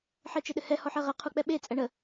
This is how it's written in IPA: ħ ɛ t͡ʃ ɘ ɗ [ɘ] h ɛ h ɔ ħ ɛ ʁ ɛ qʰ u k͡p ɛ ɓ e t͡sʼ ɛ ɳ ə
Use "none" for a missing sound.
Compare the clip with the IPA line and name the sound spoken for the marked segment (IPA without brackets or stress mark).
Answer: ɘ